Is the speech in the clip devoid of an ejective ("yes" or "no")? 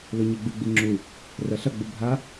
yes